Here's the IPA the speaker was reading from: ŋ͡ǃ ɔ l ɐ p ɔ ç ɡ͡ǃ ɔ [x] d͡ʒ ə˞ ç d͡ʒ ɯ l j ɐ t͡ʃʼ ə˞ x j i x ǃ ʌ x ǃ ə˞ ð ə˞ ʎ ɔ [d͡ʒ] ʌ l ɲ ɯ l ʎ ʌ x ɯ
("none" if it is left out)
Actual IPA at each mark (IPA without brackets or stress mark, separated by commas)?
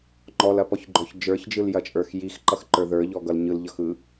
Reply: ç, ɡ